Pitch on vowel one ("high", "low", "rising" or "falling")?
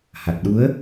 low